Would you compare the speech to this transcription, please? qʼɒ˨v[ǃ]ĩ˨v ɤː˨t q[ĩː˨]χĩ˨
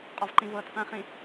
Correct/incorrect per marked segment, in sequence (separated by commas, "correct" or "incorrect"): correct, incorrect